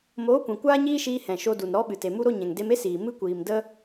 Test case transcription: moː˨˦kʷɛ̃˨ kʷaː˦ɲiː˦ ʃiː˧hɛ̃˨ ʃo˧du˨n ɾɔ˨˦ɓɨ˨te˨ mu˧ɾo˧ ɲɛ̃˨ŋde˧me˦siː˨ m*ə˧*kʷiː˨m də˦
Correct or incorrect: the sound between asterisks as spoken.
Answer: incorrect: ɨ˧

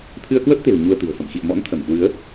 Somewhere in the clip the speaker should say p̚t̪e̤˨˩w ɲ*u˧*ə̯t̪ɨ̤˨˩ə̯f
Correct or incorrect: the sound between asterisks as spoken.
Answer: correct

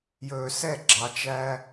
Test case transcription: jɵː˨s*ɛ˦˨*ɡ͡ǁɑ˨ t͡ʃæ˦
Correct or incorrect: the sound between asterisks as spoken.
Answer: correct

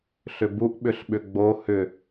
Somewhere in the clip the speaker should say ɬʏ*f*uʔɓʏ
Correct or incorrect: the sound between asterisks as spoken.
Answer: incorrect: b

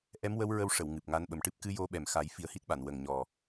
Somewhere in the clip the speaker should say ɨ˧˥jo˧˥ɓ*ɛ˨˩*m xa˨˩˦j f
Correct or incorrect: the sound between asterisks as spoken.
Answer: correct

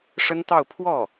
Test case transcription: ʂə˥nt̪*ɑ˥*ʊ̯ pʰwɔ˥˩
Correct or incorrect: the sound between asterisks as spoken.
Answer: incorrect: ɑ˥˧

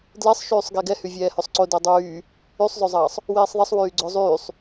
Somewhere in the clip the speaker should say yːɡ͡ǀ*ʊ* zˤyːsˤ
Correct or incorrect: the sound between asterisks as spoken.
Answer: correct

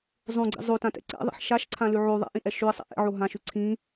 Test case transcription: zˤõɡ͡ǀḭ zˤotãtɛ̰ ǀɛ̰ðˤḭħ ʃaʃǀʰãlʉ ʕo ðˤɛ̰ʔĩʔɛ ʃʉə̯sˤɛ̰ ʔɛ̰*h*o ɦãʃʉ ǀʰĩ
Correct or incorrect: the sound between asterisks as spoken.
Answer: incorrect: ʕ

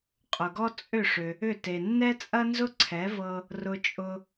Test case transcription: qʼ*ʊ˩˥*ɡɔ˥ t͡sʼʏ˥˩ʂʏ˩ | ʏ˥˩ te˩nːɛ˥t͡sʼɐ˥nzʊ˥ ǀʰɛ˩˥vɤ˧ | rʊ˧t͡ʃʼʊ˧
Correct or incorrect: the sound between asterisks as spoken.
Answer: incorrect: ʊ˩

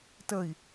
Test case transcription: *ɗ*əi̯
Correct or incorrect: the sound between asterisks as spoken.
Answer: incorrect: t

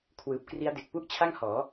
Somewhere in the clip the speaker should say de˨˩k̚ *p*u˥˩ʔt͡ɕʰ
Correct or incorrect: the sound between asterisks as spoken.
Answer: correct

